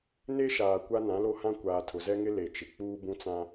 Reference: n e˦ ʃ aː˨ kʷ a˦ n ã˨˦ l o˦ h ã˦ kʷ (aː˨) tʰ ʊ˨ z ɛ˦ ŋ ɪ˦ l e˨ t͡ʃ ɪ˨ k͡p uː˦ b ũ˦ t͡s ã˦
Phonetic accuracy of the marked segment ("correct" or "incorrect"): correct